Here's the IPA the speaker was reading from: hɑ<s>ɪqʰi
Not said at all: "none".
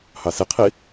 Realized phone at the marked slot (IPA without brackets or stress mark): s